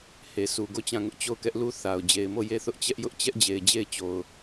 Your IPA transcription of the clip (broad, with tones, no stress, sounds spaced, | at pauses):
h e˨ s u˨ ɡ o˦˨ t͡ɕ ã˦˨ ŋ ʊ˦ ʔ t͡ɕ o˦˨ ʊ̯ k ɛ˦ ʔ l u˦ θ a˨ ʊ̯ d͡ʑ e˨ ɪ̯ m o˦˨ j e˦˨ θ ʊ˦ ʔ t͡ɕ ɛ˦ ʔ j ʊ˦ ʔ t͡ɕ ɛ˦ ʔ d͡ʑ e˨ ɪ̯ d͡ʑ e˦˨ ɪ̯ t͡ɕ o˨ ʊ̯